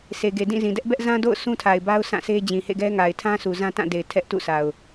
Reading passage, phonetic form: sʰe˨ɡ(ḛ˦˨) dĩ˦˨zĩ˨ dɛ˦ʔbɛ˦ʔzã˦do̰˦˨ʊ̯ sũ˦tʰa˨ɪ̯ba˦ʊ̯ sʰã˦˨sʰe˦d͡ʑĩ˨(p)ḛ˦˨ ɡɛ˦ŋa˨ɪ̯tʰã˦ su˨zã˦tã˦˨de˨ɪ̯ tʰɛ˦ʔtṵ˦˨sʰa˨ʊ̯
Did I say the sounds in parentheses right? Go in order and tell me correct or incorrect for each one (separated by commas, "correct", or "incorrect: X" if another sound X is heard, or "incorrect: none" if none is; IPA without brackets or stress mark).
incorrect: e˨, incorrect: h